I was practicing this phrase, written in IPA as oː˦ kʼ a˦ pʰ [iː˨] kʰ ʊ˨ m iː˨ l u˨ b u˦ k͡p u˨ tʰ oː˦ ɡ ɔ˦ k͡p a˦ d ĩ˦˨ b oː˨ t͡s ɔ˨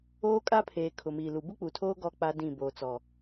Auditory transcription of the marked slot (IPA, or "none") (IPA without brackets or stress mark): eː˨